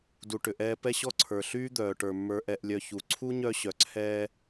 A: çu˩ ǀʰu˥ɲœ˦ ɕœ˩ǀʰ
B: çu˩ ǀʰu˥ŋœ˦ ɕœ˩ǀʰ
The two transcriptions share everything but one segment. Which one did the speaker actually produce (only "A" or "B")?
A